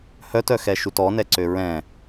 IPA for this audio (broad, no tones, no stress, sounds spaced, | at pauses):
h œ t œ x ɛ ʃ u t ɔ n ɛ ǀ ø ɹ ɛ̃